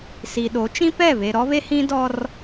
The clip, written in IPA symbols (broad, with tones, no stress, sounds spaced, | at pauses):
s i˨ ɗ o˨˦ t͡ʃ ĩ˦ p ɛ˦˨ β e˨ ɾ ɔ˦ β e˦ h ĩ˦ d ɔ˦ r